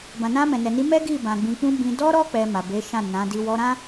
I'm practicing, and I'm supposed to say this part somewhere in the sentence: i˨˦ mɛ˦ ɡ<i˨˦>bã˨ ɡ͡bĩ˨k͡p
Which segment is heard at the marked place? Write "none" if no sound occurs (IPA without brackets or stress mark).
i˦˨